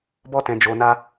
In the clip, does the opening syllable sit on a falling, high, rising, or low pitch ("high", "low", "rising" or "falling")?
high